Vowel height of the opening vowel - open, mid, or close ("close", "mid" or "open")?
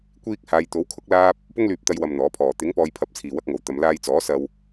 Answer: close